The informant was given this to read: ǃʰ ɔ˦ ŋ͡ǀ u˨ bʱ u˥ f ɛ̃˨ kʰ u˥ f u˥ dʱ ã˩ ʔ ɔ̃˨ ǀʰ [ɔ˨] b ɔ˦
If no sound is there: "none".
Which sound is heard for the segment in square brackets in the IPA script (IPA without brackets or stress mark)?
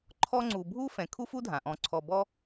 ɔ˨